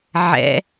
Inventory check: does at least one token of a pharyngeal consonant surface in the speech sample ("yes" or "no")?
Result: yes